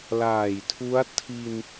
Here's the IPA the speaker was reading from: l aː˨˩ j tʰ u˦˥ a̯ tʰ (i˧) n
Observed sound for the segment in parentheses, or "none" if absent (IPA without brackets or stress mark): i˧